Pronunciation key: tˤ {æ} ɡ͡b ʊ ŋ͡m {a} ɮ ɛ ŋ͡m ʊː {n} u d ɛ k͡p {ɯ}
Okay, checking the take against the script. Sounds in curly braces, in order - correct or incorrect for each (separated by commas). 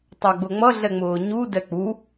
correct, incorrect, incorrect, incorrect